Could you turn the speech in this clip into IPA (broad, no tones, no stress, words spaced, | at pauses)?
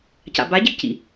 ca̰baɟɘɡcḭ